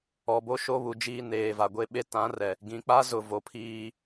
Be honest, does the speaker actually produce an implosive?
yes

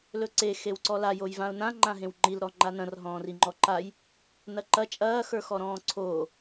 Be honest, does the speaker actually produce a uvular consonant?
no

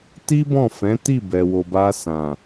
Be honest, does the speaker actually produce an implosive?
no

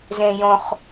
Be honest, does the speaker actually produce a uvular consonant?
yes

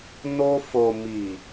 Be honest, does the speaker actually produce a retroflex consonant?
no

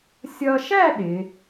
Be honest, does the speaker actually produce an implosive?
yes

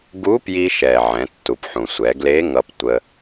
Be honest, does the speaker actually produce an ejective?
no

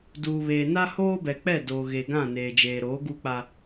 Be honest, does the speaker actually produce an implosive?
no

